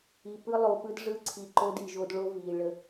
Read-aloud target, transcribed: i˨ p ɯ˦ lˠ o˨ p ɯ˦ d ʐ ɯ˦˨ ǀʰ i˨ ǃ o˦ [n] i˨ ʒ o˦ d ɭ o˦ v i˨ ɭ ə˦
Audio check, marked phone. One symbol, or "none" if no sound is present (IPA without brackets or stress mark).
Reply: d